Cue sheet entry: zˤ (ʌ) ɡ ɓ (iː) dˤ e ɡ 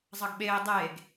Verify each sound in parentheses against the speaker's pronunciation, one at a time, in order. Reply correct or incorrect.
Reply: correct, incorrect

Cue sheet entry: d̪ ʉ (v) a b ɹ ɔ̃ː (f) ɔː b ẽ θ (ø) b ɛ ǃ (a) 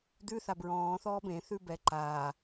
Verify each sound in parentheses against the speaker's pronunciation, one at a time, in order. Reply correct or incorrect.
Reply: incorrect, incorrect, incorrect, incorrect

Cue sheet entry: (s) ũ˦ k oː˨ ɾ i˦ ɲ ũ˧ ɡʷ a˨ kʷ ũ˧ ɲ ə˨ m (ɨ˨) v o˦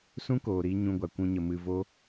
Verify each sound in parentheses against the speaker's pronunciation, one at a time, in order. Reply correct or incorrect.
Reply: correct, incorrect

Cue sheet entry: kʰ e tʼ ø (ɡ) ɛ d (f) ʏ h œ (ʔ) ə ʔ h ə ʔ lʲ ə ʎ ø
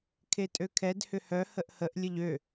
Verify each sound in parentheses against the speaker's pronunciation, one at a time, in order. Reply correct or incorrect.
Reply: incorrect, incorrect, incorrect

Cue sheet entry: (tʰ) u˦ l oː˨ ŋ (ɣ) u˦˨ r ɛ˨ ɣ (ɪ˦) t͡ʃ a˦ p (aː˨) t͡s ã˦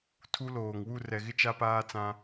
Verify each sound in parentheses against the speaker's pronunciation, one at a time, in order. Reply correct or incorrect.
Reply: correct, incorrect, correct, incorrect

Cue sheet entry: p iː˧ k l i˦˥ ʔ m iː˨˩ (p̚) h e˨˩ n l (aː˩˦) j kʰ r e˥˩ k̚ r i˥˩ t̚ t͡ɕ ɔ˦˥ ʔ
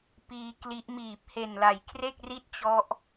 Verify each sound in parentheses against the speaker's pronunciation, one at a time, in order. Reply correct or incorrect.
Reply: correct, incorrect

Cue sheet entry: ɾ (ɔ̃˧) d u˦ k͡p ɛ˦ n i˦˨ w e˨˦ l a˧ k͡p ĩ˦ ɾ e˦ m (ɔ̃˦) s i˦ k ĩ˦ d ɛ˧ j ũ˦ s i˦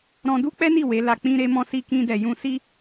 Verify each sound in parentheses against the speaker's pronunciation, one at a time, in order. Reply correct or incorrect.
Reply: correct, correct

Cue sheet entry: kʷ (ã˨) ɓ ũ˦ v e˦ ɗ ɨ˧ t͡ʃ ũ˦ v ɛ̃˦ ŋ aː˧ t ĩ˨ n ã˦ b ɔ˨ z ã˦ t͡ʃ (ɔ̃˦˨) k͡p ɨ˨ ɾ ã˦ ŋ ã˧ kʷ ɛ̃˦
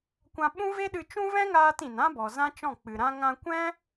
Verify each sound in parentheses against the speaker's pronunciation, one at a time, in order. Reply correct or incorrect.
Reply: incorrect, correct

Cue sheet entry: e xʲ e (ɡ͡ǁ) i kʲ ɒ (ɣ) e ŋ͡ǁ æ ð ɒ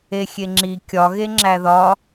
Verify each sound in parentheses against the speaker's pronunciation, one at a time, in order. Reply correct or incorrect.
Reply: incorrect, correct

